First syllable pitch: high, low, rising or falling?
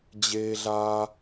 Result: high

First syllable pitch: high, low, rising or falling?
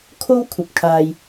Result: high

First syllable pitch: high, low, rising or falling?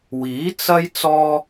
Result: rising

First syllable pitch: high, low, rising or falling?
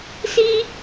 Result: high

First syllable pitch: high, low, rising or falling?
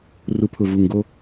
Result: rising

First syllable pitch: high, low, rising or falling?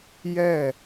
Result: falling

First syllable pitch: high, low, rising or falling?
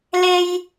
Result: high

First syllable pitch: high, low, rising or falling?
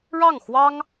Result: falling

